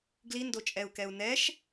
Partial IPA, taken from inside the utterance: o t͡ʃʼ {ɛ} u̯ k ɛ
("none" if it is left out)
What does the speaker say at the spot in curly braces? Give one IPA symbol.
ɛ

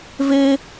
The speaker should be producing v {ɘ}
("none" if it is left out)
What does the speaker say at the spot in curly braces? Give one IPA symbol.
e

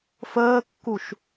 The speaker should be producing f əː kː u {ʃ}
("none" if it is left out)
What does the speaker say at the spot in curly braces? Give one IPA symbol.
ʃ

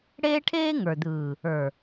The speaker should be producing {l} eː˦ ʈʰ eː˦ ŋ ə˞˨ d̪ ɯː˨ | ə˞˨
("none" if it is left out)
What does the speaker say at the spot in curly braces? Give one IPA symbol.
ɽ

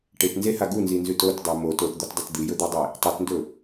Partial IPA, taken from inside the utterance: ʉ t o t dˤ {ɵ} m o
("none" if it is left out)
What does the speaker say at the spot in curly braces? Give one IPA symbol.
o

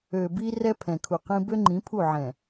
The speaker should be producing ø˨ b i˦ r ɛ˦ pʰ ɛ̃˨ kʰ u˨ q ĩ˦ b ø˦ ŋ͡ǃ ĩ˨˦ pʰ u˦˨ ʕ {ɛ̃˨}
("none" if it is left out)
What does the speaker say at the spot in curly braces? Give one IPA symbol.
ɛ̃˨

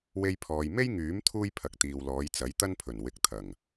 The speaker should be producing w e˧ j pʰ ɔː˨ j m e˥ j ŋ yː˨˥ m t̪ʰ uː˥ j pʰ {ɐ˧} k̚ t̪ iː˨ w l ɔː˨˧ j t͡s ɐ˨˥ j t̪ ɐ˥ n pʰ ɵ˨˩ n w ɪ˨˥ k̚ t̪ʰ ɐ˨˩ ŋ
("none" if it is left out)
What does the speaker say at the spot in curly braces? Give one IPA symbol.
ɐ˨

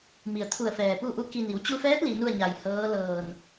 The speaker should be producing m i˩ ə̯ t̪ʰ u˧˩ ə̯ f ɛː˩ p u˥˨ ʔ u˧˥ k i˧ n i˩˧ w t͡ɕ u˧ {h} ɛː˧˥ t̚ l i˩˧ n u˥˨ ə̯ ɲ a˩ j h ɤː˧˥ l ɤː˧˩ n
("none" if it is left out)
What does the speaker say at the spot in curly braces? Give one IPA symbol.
f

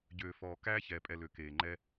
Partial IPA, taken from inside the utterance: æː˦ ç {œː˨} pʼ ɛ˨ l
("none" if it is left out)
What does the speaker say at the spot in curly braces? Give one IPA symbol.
ɛː˨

